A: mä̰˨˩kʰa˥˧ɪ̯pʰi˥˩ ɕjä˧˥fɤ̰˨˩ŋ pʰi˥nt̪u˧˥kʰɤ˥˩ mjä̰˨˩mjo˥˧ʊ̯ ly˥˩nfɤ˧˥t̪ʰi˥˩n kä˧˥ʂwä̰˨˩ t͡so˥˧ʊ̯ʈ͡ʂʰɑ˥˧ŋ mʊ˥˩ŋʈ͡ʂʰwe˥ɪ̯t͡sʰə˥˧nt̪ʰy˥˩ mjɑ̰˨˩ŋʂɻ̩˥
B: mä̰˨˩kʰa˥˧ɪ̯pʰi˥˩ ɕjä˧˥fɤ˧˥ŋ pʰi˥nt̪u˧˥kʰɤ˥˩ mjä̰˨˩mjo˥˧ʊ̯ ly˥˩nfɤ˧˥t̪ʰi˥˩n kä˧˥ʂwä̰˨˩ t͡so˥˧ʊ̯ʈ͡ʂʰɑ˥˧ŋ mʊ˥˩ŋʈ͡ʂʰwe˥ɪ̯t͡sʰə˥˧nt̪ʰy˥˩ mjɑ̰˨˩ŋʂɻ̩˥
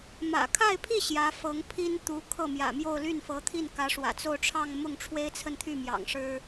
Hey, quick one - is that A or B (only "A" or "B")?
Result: B